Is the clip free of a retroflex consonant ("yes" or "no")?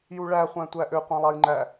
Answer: no